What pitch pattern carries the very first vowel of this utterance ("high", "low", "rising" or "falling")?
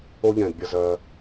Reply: high